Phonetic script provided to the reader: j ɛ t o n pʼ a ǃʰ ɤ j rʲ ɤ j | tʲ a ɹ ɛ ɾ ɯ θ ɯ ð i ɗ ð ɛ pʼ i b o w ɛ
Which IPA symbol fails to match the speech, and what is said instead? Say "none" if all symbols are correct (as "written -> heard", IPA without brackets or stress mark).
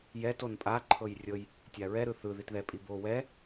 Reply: ɗ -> t